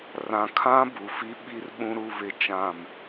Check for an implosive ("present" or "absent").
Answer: present